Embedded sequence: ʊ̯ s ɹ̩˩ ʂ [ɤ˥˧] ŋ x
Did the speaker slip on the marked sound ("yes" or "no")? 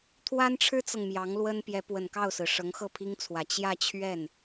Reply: yes